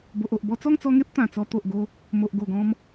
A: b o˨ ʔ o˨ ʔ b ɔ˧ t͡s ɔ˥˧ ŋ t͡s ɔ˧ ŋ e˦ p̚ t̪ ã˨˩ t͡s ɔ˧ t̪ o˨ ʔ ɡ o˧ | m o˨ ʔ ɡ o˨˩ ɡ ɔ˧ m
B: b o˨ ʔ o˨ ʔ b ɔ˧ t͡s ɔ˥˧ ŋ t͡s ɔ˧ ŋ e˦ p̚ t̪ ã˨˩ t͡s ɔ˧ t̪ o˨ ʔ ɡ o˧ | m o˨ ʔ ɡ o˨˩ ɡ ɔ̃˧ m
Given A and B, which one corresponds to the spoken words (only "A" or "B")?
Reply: B